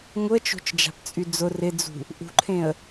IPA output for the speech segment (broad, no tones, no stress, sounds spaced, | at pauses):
ŋ ʊ ə̯ t͡ʃ o̤ t͡ʃ d͡ʒ a̤ p t͡sʼ y d͡z ʊ r ɪ d͡z ṳ | ʔ ṳ ǃʰ ẽ ə̯